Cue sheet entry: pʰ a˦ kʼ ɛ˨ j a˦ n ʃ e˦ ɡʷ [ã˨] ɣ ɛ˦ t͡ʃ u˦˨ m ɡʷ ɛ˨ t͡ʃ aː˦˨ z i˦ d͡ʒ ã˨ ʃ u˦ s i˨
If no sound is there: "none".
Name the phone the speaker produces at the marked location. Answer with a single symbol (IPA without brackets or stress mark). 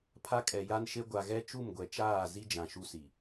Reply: a˨